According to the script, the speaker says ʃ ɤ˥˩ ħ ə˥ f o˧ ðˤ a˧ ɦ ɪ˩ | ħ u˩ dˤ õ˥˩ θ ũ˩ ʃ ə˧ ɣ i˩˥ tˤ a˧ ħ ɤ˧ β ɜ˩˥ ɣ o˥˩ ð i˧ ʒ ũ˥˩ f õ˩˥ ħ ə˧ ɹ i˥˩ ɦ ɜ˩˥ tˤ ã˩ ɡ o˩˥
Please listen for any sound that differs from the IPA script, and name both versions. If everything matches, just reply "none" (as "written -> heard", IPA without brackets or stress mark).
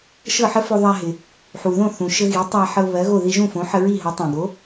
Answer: dˤ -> ð